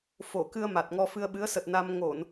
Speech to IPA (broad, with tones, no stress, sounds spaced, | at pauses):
f o˧˩ k ɨ˧ ə̯ m a˨˩ t̚ ŋ ɔ˧ f ɨ˧ ə̯ ɓ ɨ˨˦ ə̯ s ə˨˩ t̚ n a˧ m ŋ o˧˩˨ n